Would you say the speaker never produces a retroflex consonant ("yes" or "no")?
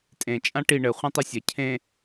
no